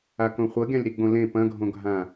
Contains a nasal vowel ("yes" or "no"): yes